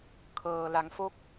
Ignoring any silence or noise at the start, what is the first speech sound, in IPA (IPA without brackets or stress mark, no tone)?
kʰ